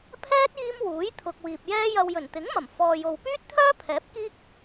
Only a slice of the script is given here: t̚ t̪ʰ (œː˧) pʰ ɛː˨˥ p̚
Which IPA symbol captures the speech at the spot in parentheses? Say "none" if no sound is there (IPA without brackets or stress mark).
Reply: œː˥